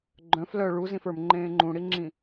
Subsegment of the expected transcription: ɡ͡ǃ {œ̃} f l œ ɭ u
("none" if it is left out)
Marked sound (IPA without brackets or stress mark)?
œ̃